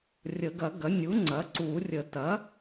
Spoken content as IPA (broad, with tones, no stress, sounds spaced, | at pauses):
rʲ ə˨˩˦ ɡ ɐ˨˩˦ ɡ ɐ˩˥ nʲ u˩˥ ŋ͡ǀ ɐ˩˥ ǀ u˨˩˦ rʲ ə˨˩˦ t ɐ˩˥